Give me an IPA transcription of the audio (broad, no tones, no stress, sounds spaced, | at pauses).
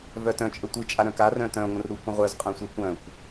v œ t œ̃ t͡ʃʼ ə tʷ ɨ t͡ʃʼ a ɾ œ̃ k a r œ̃ t œ̃ ŋʷ ə̃ r ɾ u kʷ ə̃ ʁʷ œ z qʼ œ̃ sʷ œ kʷ œ̃ kʷ